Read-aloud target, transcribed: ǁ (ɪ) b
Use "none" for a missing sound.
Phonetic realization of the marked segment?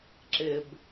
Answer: ɪ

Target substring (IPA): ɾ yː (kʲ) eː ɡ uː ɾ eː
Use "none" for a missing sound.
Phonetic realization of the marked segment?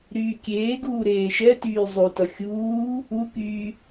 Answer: kʲ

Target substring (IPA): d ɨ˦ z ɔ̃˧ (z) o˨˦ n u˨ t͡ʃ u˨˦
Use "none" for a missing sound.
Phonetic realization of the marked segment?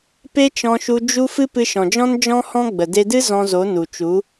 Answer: z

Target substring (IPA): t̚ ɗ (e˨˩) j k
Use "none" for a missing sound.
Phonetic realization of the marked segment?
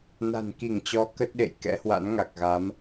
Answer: ḛ˧˨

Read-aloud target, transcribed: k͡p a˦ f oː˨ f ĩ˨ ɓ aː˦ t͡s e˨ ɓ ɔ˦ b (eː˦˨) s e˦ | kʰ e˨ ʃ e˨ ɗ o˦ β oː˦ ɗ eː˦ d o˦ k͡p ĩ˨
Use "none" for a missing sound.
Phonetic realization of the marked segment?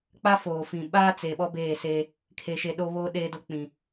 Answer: eː˦˨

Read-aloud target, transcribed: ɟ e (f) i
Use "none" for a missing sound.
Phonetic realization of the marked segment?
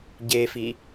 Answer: f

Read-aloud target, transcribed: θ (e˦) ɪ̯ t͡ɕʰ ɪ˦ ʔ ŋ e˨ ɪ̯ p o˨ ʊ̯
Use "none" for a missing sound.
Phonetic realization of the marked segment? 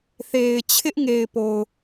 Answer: e˨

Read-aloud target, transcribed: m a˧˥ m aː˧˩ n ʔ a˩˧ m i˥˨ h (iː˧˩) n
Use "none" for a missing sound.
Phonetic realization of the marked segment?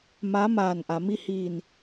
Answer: iː˧˩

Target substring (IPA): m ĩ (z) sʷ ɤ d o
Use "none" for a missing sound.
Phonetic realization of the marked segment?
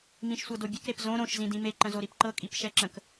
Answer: ʃ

